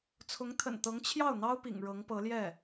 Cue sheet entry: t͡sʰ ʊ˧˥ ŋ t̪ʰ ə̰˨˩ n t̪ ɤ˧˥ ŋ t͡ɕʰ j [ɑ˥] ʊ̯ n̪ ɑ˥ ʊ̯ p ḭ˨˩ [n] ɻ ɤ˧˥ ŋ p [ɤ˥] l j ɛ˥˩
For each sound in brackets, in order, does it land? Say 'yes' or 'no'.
no, no, no

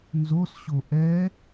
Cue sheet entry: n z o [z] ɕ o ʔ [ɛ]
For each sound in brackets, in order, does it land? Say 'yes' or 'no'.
no, yes

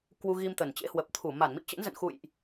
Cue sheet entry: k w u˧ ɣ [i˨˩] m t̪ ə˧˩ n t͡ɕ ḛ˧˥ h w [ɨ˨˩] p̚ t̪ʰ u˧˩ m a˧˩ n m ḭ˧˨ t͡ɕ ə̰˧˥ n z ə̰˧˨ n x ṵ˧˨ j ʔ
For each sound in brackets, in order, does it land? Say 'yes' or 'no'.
no, no

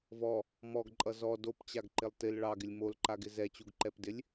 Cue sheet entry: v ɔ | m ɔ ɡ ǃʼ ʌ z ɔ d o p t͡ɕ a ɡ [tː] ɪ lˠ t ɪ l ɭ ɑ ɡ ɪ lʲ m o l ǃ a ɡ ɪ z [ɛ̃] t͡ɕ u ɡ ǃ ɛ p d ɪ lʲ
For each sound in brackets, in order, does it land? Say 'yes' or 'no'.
no, no

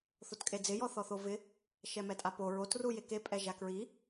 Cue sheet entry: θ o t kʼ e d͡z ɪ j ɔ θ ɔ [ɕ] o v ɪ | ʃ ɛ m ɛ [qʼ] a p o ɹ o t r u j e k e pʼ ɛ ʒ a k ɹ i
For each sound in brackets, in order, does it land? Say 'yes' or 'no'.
no, no

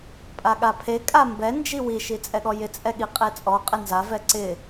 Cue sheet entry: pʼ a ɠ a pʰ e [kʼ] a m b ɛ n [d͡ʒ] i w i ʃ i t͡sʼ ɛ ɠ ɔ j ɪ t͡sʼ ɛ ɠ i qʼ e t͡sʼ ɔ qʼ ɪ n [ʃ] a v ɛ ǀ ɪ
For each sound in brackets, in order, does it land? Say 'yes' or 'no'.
yes, yes, no

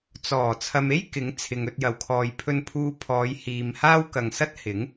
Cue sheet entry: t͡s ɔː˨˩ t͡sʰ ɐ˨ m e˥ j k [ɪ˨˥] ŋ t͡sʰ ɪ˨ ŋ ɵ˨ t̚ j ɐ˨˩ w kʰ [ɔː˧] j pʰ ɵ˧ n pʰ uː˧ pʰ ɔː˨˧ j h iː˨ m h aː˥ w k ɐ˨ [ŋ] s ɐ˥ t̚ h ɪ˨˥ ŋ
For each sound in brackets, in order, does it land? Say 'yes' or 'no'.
yes, no, yes

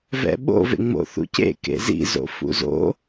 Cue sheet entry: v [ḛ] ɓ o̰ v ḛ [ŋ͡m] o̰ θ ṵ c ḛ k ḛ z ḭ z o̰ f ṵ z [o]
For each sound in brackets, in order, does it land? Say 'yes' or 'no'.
no, yes, no

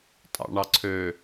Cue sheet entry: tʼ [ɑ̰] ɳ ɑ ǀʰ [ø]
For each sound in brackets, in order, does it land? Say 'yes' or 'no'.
yes, yes

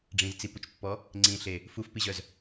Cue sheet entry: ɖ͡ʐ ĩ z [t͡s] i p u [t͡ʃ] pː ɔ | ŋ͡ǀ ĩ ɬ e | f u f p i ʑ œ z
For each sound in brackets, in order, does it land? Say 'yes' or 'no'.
yes, yes

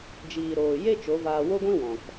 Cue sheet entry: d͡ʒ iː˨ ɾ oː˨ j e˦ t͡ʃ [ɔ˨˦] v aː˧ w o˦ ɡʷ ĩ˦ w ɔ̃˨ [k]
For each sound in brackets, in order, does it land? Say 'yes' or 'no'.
no, yes

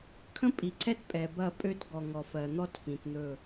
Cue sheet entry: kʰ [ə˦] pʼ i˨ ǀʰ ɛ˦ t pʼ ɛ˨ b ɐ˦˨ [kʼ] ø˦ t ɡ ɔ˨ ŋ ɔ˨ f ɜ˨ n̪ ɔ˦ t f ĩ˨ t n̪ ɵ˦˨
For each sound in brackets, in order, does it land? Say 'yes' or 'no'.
no, no

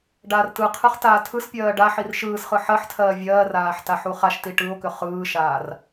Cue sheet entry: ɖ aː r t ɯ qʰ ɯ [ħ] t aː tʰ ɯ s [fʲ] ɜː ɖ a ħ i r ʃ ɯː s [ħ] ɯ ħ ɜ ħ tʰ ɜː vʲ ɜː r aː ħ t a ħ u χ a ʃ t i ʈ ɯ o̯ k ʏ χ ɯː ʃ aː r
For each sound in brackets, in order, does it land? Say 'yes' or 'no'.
no, no, no

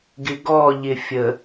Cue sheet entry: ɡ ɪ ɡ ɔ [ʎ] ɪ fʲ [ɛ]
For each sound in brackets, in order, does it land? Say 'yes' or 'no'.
yes, no

